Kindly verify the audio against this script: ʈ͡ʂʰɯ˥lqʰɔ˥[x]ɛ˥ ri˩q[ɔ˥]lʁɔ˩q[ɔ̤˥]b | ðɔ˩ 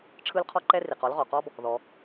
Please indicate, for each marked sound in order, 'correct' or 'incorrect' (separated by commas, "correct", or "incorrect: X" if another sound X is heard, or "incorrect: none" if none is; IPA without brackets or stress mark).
incorrect: ǃ, correct, incorrect: ɔ˥